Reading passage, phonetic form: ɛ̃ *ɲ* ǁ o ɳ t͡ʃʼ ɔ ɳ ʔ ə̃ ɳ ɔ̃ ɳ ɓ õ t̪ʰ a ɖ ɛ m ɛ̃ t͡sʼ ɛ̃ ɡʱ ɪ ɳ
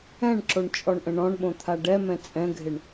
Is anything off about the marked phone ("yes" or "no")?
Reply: yes